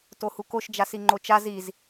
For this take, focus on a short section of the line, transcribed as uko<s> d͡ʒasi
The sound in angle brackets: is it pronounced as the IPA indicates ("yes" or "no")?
no